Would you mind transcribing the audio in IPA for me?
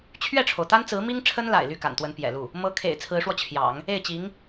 t͡ɕʰ ɥ ɛ˥˩ ʈ͡ʂʰ o˩ ʊ̯ t̪ a˥ n t͡s ɹ̩˧˥ m i˥ ŋ ʈ͡ʂʰ ə˥ n l a̰˨˩ ɪ̯ l y˥˩ k a̰˨˩ n t̪ w ə˧˥ n p j ɛ̰˨˩ l u˥˩ | m ɤ˥ kʰ ḛ˨˩ ɪ̯ t͡sʰ ɹ̩˧˥ ʂ w ɔ˧ t͡ɕʰ j ɑ̰˨˩˦ ŋ | e˥˩ ɪ̯ t͡ɕ i˧˥ ŋ

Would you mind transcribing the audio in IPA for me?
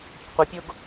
qʷ ə pʲ o ɡ

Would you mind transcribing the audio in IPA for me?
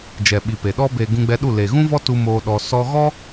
d͡ʒ ɛ˨ ɓ i˨ p e˨ ɗ ɔ˧ b e˨ ɡ ũ˧ ɡ͡b ɛ˧ ɗ u˦˨ l e˨ ɣ ũ˦ v ɔ˦ t u˧ m oː˧ ɗ ɔ˧ s ɔ˦ ɣ ɔ˦

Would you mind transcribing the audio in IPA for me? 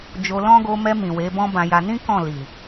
d͡ʒ o˧ l ɔ̃˦ ɡ o˧ m ɛ˧ m ĩ˨ w e˨˦ b ɔ̃˦ b ã˧ j a˧ n ĩ˦ k ɔ̃˦˨ l i˨

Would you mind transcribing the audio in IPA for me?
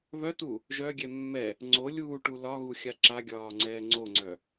β œ t u | ʒ œ ɡʲ ɛ mː ɛ | ŋ͡ǀ o lʲ uː ʈ u l ɒ ɣ u xʲ a ǁ a ɡʲ ɒː ŋ͡ǀ ɛː ŋ͡ǀ o ŋ͡ǀ œ

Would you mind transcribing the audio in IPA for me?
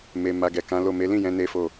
m e˨ m a˨ ɡ ɛ˨ k ã˨˦ l o˦˨ m e˨˦ l ĩ˦˨ j ɛ̃˨˦ n e˦ f o˦˨

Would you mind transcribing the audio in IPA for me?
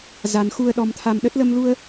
z a˧ n x u˧ ə̯ ɗ ɔ˧ m t̪ʰ a˧ m ɗ ə˦˥ t̚ l ə˧ m l u˧ ə̯

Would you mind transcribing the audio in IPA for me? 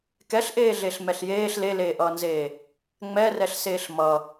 k ɛ ɬ ʔ eː ɮ e ɬ m ɛ ɬ j eː ɬ l e l eː ʔ ʌː n z eː | ŋ͡m ɛ r ɛ ɬ s eː ɬ m ʌ

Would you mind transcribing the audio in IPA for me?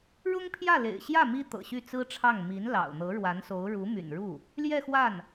ɻ ʊ˥ ŋ pʰ j ä˥˩ l ḛ˨˩ ɪ̯ ɕ j ä˥˩ m i˥ t̪ ɤ̰˨˩ ɕ y˥˩ t͡s ɹ̩˥ ʈ͡ʂʰ ɑ˥˩ ŋ m i˧˥ n l ɑ̰˨˩ ʊ̯ n̪ ɤ˧˥ ɻ w a˧˥ n s o˧˥ ʊ̯ ɻ u˧˥ m y̰˨˩ n ɻ u˥˩ | l j ɛ˥˧ x w a˥˩ n

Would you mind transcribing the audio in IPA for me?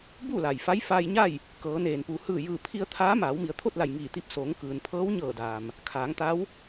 b u˥˨ l a˩ j f a˧˥ j f aː˧ j ɲ a˥˨ j | k ɤː˩˧ n eː˩ n p u˩˧ h ɯː˧˩ j ɯː˧˩ pʰ i˧ ə̯ t̪ʰ aː˧˥ m aː˩˧ w m i˩˧ ə̯ t̪ʰ o˥˨ t̚ l a˧˩ j ŋ iː˧˩ t̪ i˧ p̚ s oː˩˧ ŋ k ɯː˩ n pʰ ɤː˧˥ w ɲ ɤː˧˩ d aː˩ m | kʰ aː˩˧ ŋ t̪ a˧˥ w

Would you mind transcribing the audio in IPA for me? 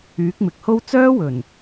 yː˨˥ k̚ m ɪ˨ k̚ h o˥ w t͡s œː˥ w ɵ˨˩ n

